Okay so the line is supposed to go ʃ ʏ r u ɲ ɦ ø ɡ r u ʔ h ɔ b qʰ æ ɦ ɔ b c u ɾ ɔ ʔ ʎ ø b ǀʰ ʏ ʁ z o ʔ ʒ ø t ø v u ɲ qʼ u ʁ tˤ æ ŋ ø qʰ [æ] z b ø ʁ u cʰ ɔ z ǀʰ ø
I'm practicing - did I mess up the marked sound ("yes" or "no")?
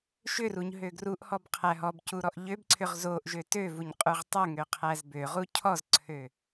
no